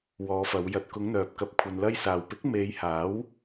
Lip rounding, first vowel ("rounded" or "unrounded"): rounded